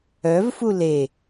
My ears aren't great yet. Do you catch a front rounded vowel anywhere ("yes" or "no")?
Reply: yes